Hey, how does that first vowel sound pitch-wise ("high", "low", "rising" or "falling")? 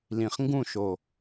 low